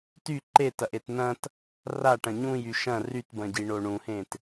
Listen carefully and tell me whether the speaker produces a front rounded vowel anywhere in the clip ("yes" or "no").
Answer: yes